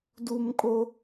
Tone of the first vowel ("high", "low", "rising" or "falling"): high